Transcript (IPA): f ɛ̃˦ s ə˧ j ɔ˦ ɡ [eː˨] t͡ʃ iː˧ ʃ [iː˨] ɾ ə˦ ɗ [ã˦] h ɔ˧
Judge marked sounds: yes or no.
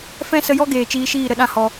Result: yes, no, yes

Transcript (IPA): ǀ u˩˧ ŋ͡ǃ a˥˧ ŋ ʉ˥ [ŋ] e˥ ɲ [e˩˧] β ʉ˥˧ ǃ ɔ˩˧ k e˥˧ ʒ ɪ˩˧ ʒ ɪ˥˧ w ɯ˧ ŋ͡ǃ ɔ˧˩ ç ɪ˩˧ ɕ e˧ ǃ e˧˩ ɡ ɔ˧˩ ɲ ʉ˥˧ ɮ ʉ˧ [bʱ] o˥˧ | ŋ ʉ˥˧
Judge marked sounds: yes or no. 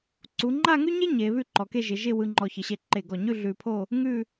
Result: no, yes, no

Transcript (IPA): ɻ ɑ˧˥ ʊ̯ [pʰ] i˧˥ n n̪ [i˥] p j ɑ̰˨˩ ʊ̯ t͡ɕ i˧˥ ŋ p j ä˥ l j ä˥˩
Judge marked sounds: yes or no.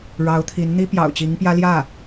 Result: no, yes

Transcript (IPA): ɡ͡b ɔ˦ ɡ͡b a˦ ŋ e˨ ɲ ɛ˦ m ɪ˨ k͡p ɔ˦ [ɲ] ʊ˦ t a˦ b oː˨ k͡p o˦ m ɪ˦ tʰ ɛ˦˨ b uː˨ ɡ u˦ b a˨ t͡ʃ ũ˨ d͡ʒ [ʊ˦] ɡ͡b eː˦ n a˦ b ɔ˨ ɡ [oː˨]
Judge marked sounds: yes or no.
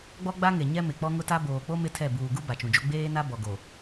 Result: no, no, no

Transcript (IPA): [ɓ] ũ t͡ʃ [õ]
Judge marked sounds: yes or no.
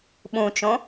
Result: yes, yes

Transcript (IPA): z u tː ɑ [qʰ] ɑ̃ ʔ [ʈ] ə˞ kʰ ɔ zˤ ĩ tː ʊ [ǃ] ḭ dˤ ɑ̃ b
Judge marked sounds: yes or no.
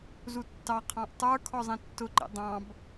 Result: yes, no, yes

